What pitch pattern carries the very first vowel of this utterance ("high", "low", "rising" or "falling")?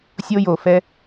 high